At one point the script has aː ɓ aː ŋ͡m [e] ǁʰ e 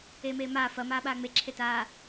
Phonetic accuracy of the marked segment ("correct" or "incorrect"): correct